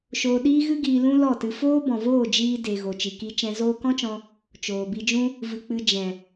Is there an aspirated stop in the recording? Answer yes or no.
no